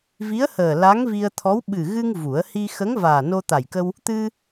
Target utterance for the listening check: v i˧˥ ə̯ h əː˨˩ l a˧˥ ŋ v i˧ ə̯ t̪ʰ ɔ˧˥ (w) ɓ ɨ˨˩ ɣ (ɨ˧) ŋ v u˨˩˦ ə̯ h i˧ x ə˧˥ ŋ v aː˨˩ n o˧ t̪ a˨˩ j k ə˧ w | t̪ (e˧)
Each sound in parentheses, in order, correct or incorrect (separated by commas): correct, correct, incorrect